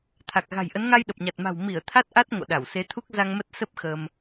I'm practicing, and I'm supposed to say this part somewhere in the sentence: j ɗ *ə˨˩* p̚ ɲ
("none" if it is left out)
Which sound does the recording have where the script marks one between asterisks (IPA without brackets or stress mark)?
ə˨˩